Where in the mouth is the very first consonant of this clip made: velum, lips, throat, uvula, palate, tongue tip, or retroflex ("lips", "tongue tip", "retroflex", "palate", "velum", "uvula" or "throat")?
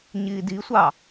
palate